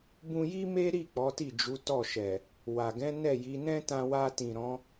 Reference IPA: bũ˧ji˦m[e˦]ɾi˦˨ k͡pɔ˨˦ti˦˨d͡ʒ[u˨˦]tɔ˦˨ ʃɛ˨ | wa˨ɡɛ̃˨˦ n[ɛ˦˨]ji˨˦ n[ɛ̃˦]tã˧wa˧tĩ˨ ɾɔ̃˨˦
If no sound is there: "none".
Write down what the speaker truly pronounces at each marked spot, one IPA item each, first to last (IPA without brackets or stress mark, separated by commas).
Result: e˦, u˨˦, ɛ˦˨, ɛ̃˦